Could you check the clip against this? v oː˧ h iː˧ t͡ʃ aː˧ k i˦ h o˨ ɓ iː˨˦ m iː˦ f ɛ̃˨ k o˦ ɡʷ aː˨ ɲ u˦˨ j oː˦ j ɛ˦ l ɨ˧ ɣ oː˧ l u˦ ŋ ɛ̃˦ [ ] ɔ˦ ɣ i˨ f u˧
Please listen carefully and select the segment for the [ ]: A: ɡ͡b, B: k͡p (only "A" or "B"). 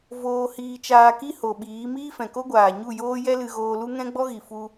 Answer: A